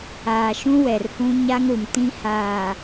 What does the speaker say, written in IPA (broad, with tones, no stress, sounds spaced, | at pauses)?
aː˨ ʃ ũ˦ w ɛ˨ r h ũ˦ ɲ a˦ ŋ ɾ u˨ m t ĩ˦ h aː˨